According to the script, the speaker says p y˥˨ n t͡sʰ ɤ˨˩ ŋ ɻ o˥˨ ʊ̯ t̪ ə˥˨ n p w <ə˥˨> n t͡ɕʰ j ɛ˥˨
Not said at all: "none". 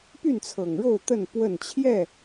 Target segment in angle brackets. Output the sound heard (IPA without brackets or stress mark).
ə˥˨